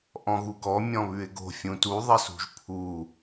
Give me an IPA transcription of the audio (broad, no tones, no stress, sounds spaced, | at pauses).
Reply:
ʔ ɔ̃ ɣ u ɡ ɔ mʲ ɔ̃ β ʉ ɪ̯ ɡ o̤ fʲ ũ t u ðˤ ə s ṳ ʒ pʰ u